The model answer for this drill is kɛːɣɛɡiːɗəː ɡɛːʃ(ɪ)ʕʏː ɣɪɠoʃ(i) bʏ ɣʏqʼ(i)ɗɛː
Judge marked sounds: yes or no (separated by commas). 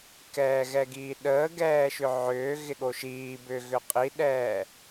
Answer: no, no, yes